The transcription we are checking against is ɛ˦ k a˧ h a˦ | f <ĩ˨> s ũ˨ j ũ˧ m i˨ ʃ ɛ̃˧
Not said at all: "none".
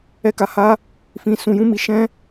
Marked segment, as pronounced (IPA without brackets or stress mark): ĩ˨